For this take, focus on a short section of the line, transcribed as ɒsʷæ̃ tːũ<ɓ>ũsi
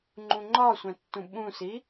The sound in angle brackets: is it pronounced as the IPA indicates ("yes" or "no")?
yes